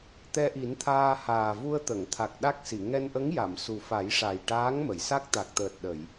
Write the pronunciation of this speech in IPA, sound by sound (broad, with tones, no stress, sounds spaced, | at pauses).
t̪ ɛ˧ ʔ i˨˩˦ n t̪ʰ aː˧ h aː˨˩ v u˧ ə̯ t̪ ə˨˩˨ ŋ t̪ʰ a˨˩ k̚ ɗ a˦˥ k̚ s i˨˩˨ ŋ ɛ˧ n ʔ ə˧˥ ŋ j a˨˩˨ m s u˨˩ f a˨˩˦ j ʂ a˨˩ j ʈ aː˧˥ ŋ m ə˨˩˨ j s a˦˥ k̚ t̪ a˨˩ k̚ t̪ əː˨˩ t̚ ɗ ə˨˩˨ j